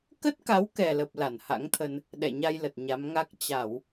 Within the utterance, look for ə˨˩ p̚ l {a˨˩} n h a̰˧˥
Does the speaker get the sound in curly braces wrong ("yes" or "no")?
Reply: yes